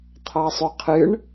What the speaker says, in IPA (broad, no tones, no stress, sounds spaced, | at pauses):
t̪ʰ ɑ sˤ ø qʰ ɨ ɳ